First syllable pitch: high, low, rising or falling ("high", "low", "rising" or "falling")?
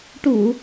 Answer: low